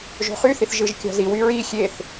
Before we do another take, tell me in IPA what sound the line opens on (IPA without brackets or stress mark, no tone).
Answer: ʒ